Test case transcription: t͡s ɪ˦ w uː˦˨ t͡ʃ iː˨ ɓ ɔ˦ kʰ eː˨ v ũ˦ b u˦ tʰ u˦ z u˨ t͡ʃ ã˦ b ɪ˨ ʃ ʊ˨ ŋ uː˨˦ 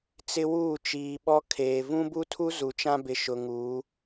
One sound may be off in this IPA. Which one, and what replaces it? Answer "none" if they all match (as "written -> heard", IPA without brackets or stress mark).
none